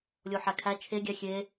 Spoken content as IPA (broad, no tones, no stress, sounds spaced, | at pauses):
lʲ o ħ æ kʰ æ t͡ʃʰ e ɡʲ æ xʲ e